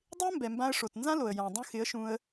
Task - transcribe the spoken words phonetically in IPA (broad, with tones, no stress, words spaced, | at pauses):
dˤɪ˦ə̯mbɛ˨ mbã˧ə̯ʂo˨t nzã˦lo˨ə̯ jã˨ dˤũ˧xɪ˨˦ə̯ʃũ˧ə̯